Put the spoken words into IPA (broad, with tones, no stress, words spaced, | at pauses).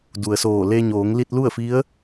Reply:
du˩ə̯soː˧˩ le˧ɲoː˩˧ŋ li˧t̚lu˥˨ə̯fi˧˥ə̯